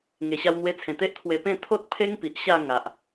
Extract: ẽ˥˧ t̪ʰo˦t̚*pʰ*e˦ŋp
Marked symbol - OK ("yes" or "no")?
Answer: yes